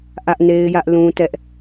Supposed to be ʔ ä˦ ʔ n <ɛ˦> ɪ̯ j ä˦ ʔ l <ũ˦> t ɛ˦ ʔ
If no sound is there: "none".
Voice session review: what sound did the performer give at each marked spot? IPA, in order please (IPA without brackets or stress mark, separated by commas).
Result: e˦, ũ˦